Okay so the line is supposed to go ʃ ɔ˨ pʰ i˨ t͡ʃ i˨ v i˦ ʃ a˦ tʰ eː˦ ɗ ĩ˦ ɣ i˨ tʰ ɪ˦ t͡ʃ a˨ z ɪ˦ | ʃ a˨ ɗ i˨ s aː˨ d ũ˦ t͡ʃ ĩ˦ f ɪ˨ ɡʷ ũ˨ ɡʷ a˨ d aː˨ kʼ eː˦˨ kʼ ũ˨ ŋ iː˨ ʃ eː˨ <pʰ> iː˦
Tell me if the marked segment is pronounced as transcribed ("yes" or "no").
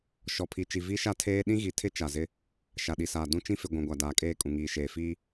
no